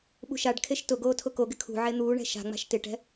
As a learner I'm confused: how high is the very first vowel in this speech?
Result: high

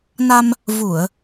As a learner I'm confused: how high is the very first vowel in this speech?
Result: low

